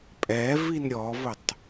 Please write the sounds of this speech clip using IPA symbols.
pʼ ɛ v i n ɾʲ ɔ v ʊ tˤ

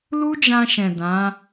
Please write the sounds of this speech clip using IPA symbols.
l u˦ d͡ʒ ã˧ ʃ ɛ̃˨ d ã˨˦

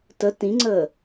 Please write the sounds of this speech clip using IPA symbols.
t ə t ĩ ŋ͡ǀ əː

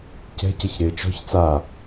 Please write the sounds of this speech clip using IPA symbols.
c ɛ̤ c ə ç ɾ ɪː t͡ʃ ɔ̤ ç t͡s a

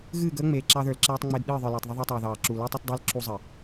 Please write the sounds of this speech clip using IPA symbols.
ɣ ɨː˦˨ ɡ əː˦ ŋ͡m eː˨ ǁ ɑ˦ ð ə˞˨ l ǁ ɛː˦ tˤ ŋ͡m ɪː˦ d ɗ ɨː˦˨ ðˤ ə˞˨ l eː˨ tˤ ð ə˦ ðˤ o˦ tˤ ɑː˨ ð ɑː˨ ǁ u˨ l ɛ˦ tˤ ə˦ t dˤ əː˦ l ǁ u˦ zˤ ə˨

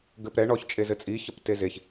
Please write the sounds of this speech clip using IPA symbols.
ɡ ɘ p ɾ ɛ ɳ ɔ ç t͡ʃʼ e z ɘ t͡sʼ i ç ɐ p t e z e ç

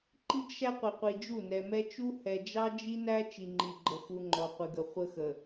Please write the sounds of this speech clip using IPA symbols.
ǃ i˦ ɡ ʃ æ˦ qʷ i˨ qʷ i˨ d͡ʒ u˦˨ n ɛ˨ m ɛ˦ t͡ʃ u˦ h ɛ˨ d͡ʒ ɑ˦ d͡ʒ i˦ n æ˦ t͡ʃ i˨ ŋ͡ǃ i˨ ɡ͡ǃ ə˨ x u˨ ŋ͡ǃ ɔ˨ qʷ ɪ˨ ɡ ə˨ χʷ ə˦ x ə˨

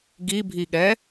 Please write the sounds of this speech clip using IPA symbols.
ɡ i bʱ i ɠ ɛ

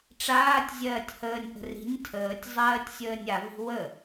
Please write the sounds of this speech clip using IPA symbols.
ʈ͡ʂ aː tʲ zʲ ɜː tʲ h əː nʲ ʔ ə̤ r i̤ nʲ tʰ əː tʲ zˤ ɜː tʲ sʲ əː nʲ a v i̤ w ə

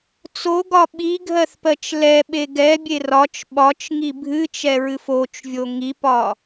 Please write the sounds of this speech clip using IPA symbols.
t͡s o ɡ ɒ ɓ i ɡʱ ɜ θ p ɜ t͡ʃ l ɛ ɓ e ɡ ɛ bʲ e r ɒ t͡ʃ ɓ ɒ t͡ʃ ŋ i bʱ ɨ t͡ʃ ɛ ɹ ɨ f o t͡ʃ vʲ o ŋ i p ɒ

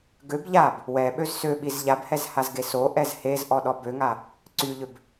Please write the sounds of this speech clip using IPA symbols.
ɡ ø b ʎ a b | w ɛ ɓ ø z s ø ɓ i z ʎ a b h ɛ z h a z ɡ e s o ʔ ɛ z h e z ʔ ɔ ɗ ɔ b ø ŋ a | ǀ y ʎ ø b

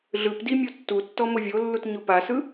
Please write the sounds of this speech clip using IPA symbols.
ɮ ɯ p d i mʲ o tː u tː ɔ m o vʲ o lː u t ɲ o p a s ɯ

